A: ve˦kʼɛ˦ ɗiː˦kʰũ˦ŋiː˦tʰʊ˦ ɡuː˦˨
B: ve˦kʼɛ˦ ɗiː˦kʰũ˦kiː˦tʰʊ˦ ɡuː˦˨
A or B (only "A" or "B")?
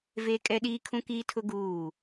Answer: B